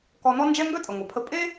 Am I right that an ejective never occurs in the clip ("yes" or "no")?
no